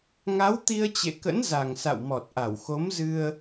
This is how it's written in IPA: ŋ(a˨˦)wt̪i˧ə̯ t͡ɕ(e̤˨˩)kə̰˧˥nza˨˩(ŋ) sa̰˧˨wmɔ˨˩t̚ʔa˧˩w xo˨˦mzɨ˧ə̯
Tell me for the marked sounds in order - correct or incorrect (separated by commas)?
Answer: correct, incorrect, correct